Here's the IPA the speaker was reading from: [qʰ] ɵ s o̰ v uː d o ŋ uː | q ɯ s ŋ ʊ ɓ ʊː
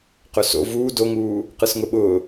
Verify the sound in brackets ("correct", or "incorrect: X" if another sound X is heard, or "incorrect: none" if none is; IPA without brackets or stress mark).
incorrect: q